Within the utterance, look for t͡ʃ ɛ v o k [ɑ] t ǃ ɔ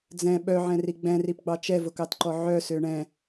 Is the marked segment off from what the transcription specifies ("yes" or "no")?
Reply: no